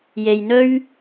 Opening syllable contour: low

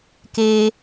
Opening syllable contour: high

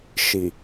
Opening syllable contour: low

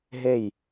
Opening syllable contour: falling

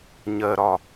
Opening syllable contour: low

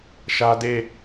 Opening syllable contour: high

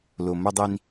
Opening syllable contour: low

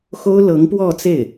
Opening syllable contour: high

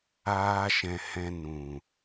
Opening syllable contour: high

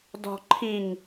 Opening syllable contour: low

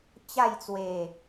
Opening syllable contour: falling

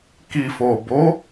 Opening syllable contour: low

